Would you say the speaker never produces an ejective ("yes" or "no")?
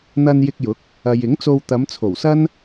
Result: yes